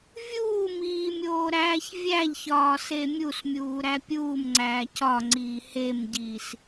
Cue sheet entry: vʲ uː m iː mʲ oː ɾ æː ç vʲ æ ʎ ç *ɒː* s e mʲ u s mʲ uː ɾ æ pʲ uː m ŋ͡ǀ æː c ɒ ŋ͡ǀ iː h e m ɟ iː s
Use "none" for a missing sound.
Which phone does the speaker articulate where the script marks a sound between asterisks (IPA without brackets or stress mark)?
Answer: ɒː